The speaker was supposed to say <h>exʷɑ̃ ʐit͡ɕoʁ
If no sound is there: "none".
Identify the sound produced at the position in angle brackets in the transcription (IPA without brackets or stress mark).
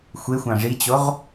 xʷ